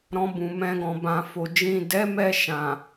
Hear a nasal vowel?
yes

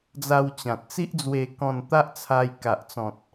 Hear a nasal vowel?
yes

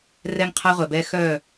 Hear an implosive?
no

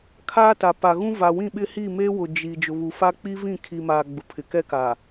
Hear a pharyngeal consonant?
no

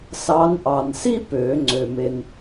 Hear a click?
yes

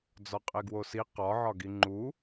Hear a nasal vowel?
no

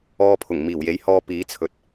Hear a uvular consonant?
no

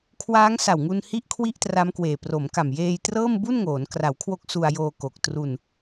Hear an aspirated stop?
yes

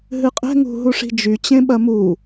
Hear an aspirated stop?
no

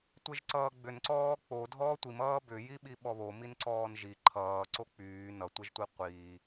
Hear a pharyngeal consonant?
no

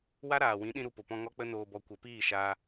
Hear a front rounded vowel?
no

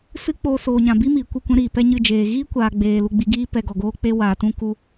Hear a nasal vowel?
yes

